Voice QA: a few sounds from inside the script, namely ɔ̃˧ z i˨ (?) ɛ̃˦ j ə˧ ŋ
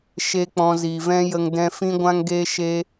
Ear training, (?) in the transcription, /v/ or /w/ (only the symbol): v